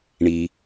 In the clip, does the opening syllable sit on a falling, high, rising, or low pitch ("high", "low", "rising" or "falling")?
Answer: low